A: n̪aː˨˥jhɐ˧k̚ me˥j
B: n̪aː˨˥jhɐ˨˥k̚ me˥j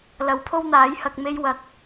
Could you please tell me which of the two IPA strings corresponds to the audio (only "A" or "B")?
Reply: A